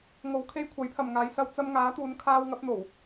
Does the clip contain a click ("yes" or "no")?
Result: no